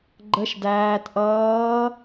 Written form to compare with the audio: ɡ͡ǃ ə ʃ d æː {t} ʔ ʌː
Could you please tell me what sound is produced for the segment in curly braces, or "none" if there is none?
t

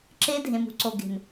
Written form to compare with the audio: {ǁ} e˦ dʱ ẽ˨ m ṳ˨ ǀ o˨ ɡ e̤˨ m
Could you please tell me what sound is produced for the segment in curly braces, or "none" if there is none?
ǁ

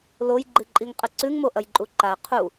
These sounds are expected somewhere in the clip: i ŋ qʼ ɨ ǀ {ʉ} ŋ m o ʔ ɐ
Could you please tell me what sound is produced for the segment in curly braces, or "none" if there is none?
ʉ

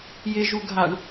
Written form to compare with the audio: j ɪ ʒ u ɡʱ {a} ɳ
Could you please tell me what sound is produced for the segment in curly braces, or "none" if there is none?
a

